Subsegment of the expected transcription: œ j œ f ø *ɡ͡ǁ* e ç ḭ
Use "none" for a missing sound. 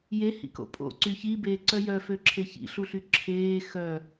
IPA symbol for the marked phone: ǁʰ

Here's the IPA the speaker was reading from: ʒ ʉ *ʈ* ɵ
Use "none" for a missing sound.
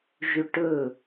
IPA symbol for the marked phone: ʈ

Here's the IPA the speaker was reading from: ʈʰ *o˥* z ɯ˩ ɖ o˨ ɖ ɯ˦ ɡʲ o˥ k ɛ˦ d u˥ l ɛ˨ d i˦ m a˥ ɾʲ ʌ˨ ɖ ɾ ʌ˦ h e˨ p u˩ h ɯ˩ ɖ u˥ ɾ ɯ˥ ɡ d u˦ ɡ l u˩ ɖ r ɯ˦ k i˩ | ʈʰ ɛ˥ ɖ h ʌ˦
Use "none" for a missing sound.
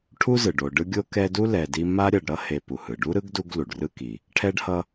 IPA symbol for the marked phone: u˥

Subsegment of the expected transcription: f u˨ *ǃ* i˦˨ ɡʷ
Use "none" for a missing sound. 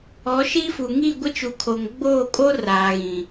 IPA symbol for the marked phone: ŋ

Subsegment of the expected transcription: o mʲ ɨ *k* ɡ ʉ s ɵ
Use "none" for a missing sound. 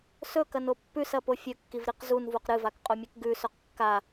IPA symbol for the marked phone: k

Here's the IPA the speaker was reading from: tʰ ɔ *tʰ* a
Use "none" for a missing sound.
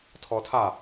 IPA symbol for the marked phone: tʰ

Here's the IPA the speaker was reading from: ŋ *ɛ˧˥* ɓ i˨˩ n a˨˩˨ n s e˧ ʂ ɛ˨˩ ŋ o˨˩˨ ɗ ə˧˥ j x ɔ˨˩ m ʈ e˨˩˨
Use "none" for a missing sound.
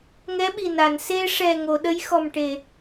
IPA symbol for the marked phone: ɛ˧˥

